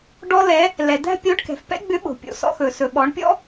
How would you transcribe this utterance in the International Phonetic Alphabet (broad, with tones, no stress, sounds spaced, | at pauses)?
ɖ ɔ˧ l ɛ˩˧ | l ɛ˩ d̪ æ̤˥ pʲ o˧˥ ɖ k ɛ̤˩ f p ɛ̰˥ ɡ͡b ʏ˧˥ ɓ o̤˩ pʲ o̰˩ s ɔ̰˧ x ɵ˩ s ɵ˩ ɓ ɔ˩˧ ɳ pʲ ɔ̰˥